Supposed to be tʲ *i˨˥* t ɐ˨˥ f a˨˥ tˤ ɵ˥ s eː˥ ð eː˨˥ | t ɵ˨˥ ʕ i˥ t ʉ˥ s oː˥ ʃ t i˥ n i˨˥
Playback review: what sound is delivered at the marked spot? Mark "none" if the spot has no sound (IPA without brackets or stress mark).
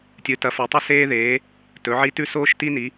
ɨ˨˥